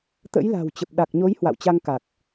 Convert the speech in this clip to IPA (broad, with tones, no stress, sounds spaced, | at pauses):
t̪ ə̰˧˥ j l a̤˨˩ w t͡ɕ ə˨˩ p̚ ɗ a˨˩ k̚ ɲ o˨˦ j h w a̰˧˨ w t͡ɕ a˧ ŋ k a˨˩ k̚